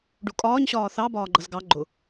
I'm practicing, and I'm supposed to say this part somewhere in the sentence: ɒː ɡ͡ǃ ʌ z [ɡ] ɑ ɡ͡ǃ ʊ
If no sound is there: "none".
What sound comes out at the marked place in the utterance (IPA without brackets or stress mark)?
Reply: ɡ